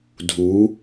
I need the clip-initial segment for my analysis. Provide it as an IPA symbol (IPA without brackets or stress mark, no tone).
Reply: dʱ